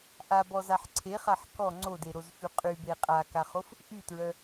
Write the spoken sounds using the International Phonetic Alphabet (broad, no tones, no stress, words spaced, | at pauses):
ʔabɔzaħ ǀʰeχaħ kɔ ŋ͡ǀodeɾozfy qʼybe qʼakaχof | ʔytɹœ